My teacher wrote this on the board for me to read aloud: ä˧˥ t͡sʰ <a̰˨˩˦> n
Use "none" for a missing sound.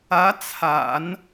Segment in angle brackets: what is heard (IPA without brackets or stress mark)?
a̰˨˩˦